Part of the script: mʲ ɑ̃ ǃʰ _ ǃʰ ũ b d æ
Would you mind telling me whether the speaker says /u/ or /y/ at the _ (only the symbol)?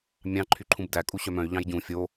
y